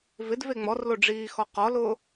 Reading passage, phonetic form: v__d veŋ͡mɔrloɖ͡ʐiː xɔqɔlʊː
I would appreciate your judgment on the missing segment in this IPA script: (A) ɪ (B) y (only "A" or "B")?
A